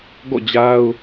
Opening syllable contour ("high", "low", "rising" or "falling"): falling